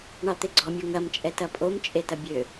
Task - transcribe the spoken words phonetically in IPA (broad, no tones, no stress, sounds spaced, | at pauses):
ɳ ɑ t̪ e ɡ͡ǀ ɔ mʲ ɤ ŋ ɐ m t͡ʃʼ ɛ t ɐ pʼ o m t͡ʃʼ e t ɐ bʲ ø